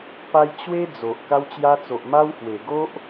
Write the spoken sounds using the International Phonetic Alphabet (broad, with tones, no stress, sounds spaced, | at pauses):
p a˧ j t͡ɕ w e˦ d͡z o˨ ʔ k a˧ w t͡ɕ j a˧ t͡s o˨ ʔ m a˦ w h w e˨˩ ɡ o˦ ʔ